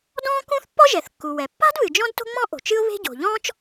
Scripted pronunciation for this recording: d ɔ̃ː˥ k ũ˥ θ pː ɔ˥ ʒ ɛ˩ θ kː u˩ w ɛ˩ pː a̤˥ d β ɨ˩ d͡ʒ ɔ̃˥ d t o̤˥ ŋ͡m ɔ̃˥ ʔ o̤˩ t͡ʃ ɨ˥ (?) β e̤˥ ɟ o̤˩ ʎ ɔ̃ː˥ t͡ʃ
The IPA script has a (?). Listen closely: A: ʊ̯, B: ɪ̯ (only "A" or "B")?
A